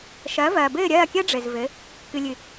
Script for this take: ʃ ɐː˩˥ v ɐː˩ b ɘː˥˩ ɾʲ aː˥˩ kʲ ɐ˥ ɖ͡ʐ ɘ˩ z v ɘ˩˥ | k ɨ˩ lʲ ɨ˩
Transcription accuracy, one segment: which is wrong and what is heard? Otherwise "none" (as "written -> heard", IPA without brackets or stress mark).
aː˥˩ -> ɐː˥˩